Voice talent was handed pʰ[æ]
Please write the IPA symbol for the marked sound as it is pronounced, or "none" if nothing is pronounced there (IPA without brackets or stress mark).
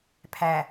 æ